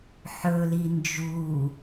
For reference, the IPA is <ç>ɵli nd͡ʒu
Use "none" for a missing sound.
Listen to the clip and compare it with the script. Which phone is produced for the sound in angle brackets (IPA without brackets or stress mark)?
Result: ħ